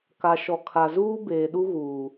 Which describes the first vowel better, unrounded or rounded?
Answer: unrounded